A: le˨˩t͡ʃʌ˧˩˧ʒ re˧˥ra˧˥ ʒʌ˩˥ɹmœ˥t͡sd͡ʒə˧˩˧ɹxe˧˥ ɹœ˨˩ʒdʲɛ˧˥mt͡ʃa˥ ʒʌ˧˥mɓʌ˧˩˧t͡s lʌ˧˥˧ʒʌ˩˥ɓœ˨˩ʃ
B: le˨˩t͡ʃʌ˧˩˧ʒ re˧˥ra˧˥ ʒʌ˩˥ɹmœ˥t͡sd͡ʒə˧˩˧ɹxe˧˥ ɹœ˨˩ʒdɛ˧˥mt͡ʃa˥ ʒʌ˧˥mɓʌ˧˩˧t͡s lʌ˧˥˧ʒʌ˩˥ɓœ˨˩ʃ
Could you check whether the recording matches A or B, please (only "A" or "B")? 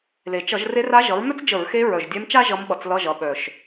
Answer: A